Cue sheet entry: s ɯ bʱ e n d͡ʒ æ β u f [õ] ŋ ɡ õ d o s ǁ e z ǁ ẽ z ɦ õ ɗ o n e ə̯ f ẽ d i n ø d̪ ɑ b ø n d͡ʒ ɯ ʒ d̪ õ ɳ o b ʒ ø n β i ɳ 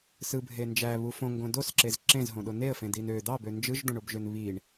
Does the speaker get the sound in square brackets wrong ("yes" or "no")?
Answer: no